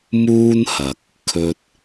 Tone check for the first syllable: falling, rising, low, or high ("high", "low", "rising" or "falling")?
high